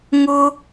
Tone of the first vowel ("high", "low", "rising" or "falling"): high